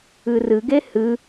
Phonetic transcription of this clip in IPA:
ɨ r ɨ ɡ e h ɨ

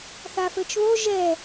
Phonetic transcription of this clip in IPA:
θ a f ɘ t͡ʃ β o ʒ ɛ

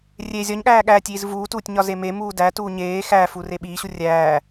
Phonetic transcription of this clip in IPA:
rʲ e zʲ ɒ ɲ ɠ æː ɠ æː tʲ iː z v uː t uː tʲ ɲ ɒ z e m e m uː d æ t uː ɲ eː x æː f u r e ɓ iː ɕ u rʲ æː

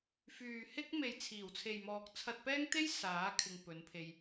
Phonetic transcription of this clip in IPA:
f yː˨ h ɪ˥ k̚ m e˨ j t͡sʰ iː˨˩ w t͡sʰ e˨ j m ɔː˨ k̚ t͡sʰ ɐ˧ t̚ p ɛː˥ ŋ t̪ e˥ j s aː˨˥ kʰ ɪ˧ ŋ p ɵ˨˥ n pʰ e˧ j

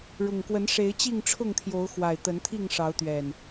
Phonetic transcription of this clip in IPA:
ɻ ʊ˨˩ ŋ k w ə˨˦ n ʂ e˨˦ ɪ̯ t͡ɕ i˥˨ ŋ ʈ͡ʂʰ ʊ˥˨ ŋ t̪ʰ j o˨˦ ʊ̯ x w a˨˩ ɪ̯ t̪ ə˨˦ n t̪ʰ i˥˨ ŋ ʂ ɑ˨˦ ʊ̯ t̪ ɥ ɛ˨˩ n

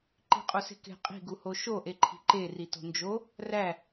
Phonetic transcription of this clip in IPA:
ǃ i̤ qʼ o s e̤ k e̤ qʼ i̤ ɡ u h o ʃ o ʔ e ǃʰ i̤ ǃ e r i t o̤ n d͡ʒ o | r æ

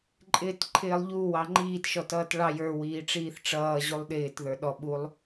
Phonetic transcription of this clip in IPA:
ǃʼ ɪː t ǃʰ ɪː lˠ ʎ u w ɑ ŋ͡ǃ iː t ʃ ɔ t ʌː t ɭ ɑ j ə˞ w iː ʈ͡ʂ iː θ ʈ͡ʂ ʌː ʑ u lˠ ɗ ɪː t ð ə˞ ɗ ɔ ɓ u lˠ

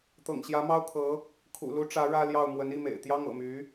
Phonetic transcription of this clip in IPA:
t̪ ɤ̰˨˩ ŋ ɕ j ä˧˥ m ɑ˥ ʊ̯ kʰ ɤ˧˥ | kʰ ṵ˨˩ l u˧˥ ʈ͡ʂ ä˧˥ ɻ ä˥ l j ɑ˥˩ ʊ̯ m w ə˧˥ n i˥˩ m ḛ˨˩ ɪ̯ t̪ j ɑ˥ ŋ ɤ̰˨˩ m y˧˥

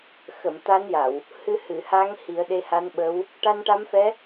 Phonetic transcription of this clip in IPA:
x ə˨˩˨ m t̪ a˧˥ n j a˨˩˨ w | h ɨ˧ h ɨ˨˩˨ h a˧˥ ŋ h i˨˩˦ ə̯ ɗ e˧ h a˧˥ n ɓ ə˧˥ w | ʈ a˧ n ʈ a˧˥ m f ɛ˧˥

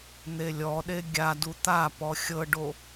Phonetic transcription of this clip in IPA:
n̪ e lʲ ɔ ɗ e ɡʲ a d u t̪ a p ɔ xʲ ɤ ɖ o

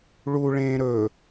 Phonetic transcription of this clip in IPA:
ɭ u ɭ ẽː ɾ ɵ

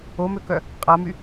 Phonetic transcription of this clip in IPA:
o m ø k œ | qʼ a m y

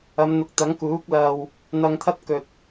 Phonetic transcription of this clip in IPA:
ɐ˨˧ m n̪ ʊ˨˥ k̚ t̪ ɐ˨˥ ŋ k uː˨˥ k̚ l ɐ˨ w | n̪ ɐ˧ ŋ t̪ʰ ɐ˥ t̚ k ɵ˨ t̚

